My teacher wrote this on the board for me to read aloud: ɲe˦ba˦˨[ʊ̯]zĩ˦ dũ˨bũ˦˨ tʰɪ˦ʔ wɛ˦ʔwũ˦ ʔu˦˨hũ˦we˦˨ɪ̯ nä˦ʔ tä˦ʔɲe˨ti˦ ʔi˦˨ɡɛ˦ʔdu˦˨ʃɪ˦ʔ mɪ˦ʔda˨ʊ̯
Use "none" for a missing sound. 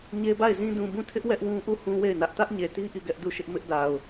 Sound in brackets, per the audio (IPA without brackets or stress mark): ɪ̯